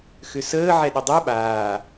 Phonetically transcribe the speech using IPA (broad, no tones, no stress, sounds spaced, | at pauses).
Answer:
x ʏ s əː ʕ ɛ ɗ ʏ dˤ ɛ ɓ aː